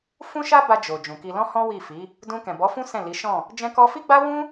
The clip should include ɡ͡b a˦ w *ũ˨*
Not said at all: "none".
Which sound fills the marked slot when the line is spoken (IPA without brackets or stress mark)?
ũ˦